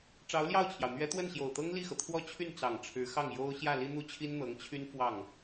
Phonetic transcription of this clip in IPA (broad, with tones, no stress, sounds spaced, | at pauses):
ʈ͡ʂ ɑ˧˥ ʊ̯ l j ɑ˥˩ ʊ̯ t͡ɕʰ j ɑ˩ ʊ̯ n̪ ɥ ɛ˧˥ t̪ w ə˥˩ n ɕ j o˨˩ ʊ̯ t̪ ɤ˥ ŋ l i˥˩ x ɤ˩ t̪ʰ w ɔ˥˧ t͡ɕʰ y˥˩ n t͡s ɑ˨˩ ŋ ʈ͡ʂʰ ɻ̩˧˥ x ɑ˥˩ ŋ j o˥ ʊ̯ ɕ j ä˥˩ l i˥ n̪ u˥ t͡ɕʰ i˥ n n̪ ɤ˧˥ ŋ t͡ɕʰ y˥ n f w ɑ˥˩ ŋ